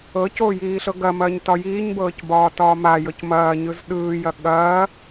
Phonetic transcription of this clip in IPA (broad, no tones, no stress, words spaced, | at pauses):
ɤco jiːɬɤɡɐmɐːɲ tɒjiːɲbɤːc bɒːtɒːmajɤc mɐː ɲɯzɗɯːjɐ ɠɐː